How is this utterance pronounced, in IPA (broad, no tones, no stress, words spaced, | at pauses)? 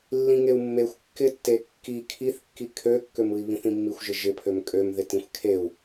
lːĩŋeu̯mːexʷ kːɪtːe kːi kʰiθkːi kʰøkːømɯi̯ βĩθĩmːixʷ ʒɪʒɪ pʰømkʼømðɪ tĩxʷkʰeu̯